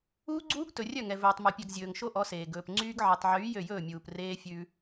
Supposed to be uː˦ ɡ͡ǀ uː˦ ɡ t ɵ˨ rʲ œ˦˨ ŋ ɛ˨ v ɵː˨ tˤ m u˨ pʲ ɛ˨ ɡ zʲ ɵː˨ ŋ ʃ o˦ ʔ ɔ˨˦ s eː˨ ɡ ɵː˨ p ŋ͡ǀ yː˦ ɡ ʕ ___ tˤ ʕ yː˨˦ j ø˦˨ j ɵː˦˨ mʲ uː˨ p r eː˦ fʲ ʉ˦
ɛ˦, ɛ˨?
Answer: ɛ˨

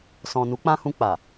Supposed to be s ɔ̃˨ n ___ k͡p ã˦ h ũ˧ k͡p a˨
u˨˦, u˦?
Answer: u˨˦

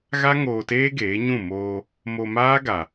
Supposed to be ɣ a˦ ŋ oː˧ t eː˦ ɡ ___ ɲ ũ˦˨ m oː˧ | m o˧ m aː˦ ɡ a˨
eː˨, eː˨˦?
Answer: eː˨˦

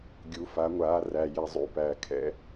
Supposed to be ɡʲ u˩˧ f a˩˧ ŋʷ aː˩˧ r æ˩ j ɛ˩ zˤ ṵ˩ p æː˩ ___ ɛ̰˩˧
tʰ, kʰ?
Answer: kʰ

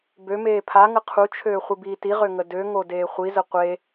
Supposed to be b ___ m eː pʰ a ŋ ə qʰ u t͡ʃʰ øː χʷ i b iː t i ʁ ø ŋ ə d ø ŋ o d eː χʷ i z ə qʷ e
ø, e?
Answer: ø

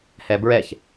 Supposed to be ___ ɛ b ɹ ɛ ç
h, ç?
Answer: h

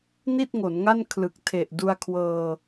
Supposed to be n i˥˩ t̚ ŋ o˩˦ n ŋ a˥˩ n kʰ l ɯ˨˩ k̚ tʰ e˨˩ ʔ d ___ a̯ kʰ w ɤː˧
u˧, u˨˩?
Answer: u˧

